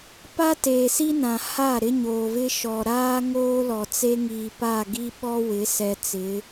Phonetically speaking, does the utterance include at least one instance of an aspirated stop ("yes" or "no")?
no